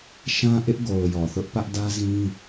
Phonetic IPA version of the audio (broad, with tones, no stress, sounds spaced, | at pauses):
ʃ ã˦ ʔ ɪ˦ ʔ ɡ o˨ ʊ̯ j ɔ˨ θ ʊ˦ ʔ p ä˦ ʔ d ä˦ z ĩ˦